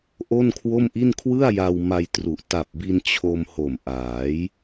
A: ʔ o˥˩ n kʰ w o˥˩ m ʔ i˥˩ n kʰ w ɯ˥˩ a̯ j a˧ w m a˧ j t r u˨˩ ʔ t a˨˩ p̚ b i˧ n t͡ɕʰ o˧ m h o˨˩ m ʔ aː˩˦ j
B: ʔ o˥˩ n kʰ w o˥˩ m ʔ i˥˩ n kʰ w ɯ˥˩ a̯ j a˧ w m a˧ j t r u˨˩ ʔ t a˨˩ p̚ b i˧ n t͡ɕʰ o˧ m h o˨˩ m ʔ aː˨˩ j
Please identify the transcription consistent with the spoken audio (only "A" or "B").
A